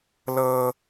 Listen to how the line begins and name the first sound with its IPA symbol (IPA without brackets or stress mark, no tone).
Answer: l